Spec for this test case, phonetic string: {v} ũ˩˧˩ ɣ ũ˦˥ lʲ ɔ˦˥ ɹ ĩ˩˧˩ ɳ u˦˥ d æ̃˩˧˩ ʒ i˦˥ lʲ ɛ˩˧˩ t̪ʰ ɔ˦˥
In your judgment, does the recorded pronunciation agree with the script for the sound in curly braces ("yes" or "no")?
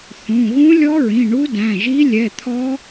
no